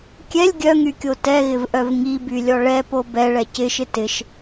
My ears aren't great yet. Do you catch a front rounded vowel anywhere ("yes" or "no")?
yes